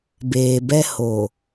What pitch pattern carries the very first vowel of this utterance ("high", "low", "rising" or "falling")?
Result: low